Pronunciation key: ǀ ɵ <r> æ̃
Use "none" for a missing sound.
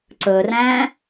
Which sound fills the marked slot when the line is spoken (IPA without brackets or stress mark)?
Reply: r